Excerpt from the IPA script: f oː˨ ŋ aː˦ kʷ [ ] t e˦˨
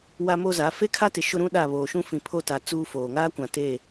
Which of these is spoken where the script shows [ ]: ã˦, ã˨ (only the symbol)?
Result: ã˨